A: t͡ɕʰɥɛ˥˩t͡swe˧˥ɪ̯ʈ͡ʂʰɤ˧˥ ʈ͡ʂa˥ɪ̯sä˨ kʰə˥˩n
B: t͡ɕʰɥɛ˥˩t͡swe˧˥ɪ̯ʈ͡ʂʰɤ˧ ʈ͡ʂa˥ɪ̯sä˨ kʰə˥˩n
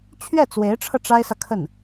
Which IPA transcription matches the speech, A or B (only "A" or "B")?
B